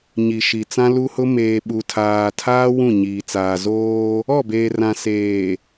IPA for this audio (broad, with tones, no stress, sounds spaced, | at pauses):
ɲ i˨ ʃ i˨ t͡s ã˦ l u˦ h ʊ˦ m eː˨ ɓ u˨ tʰ aː˨ tʰ aː˦ w ũ˦˨ ɲ iː˨ t͡s aː˨ z oː˦ | ɔ˦˨ b eː˨ r ã˨ s eː˨